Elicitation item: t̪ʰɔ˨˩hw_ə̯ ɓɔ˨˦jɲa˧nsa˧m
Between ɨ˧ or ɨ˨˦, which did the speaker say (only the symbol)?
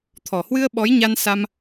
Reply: ɨ˧